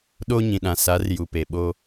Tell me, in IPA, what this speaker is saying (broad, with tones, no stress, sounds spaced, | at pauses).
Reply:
ɗ o˦ ɲ ĩ˨ ɗ ã˨ s a˨˦ r j u˨ p e˨ ɓ o˦